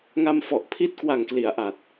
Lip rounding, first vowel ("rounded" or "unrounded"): unrounded